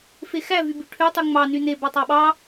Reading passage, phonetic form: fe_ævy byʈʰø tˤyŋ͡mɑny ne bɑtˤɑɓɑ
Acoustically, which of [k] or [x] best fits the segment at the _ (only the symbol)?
x